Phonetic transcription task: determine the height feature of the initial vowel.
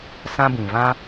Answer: low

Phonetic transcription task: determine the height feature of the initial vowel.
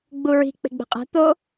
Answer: high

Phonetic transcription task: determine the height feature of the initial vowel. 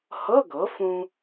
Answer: mid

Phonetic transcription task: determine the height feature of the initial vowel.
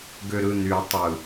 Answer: mid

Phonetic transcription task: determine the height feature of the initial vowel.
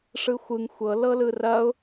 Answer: high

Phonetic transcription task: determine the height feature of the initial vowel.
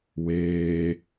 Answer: mid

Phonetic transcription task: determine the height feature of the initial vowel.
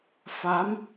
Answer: low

